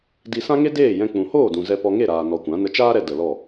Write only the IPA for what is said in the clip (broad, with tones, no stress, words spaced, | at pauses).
di˧sã˦ŋe˦ deː˦˨jɛ̃˧ k͡pũ˨hoː˦˨dũ˨ zɛ˧pɔ˧ŋe˦˨ ɾaː˨ nɔ˨ kʷã˨˦ nə˧t͡ʃaː˦ɾɛ˧ də˨lɔ˦˨